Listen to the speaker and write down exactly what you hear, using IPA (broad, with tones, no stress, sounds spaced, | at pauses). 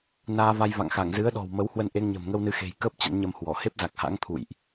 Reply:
n aː˧ v a˧ j v a̰˧˨ ŋ x a˧˩ ŋ z ɨ˨˦ ə̯ ɗ ɔ̤˨˩ w m ə˨˦ w h w ə˧ n ʔ e˧ ŋ ɲ ə̤˨˩ m ŋ ə˧ w n ɨ˧ x e̤˨˩ j k əː˦˥ p̚ t͡ɕ ə̰˧˥ n ɲ ə˧ m h w ɔ˧˩ h e˦˥ p̚ z a˨˩ k̚ h a̰˧˥ ŋ t̪ʰ ṵ˧˨ j ʔ